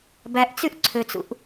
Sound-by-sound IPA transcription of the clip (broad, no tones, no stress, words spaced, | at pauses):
bæʔt͡syʔ ǀʰøt͡sṵʔ